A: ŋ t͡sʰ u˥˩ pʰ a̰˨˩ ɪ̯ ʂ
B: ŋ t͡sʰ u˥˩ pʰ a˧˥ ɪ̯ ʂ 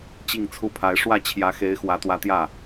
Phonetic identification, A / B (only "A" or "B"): B